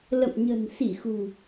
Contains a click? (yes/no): no